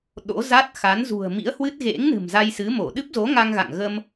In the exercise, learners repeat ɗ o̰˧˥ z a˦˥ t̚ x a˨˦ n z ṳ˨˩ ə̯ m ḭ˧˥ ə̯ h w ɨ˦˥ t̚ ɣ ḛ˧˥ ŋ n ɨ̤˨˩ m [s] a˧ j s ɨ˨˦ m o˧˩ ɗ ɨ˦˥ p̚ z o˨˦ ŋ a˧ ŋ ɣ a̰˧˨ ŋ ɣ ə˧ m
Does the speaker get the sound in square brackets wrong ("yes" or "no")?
yes